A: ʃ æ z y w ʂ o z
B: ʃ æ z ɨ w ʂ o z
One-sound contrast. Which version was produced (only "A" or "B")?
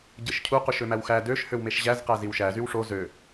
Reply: A